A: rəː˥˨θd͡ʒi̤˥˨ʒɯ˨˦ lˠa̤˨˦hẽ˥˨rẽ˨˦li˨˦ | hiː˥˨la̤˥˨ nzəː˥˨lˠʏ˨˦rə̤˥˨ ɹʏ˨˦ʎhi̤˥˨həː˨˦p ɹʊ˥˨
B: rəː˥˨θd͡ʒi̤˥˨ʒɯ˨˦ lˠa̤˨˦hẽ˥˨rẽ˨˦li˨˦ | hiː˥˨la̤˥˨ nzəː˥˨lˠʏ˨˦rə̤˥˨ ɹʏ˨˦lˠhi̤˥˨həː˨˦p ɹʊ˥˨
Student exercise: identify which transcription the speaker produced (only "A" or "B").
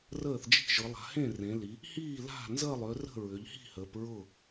A